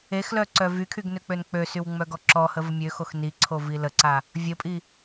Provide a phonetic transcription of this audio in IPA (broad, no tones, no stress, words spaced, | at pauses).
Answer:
exlœǀœ vykʰyɡnøk͡pøn k͡pøsywŋ͡mœɡɔ ǁɔhəvə mʲøxox niǀʰovi ləǀa | vʲəpʼi